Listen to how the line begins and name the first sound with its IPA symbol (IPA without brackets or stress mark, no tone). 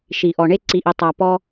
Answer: ʃ